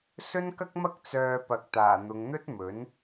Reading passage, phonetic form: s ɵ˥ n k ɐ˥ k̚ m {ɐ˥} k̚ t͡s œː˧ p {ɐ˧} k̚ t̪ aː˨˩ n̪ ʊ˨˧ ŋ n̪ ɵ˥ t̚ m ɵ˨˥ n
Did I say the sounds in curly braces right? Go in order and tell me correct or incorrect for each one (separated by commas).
correct, incorrect